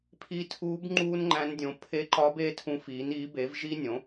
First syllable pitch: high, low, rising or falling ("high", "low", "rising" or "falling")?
rising